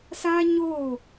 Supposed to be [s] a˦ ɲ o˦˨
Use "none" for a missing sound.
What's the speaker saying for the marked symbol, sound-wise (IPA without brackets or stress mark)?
s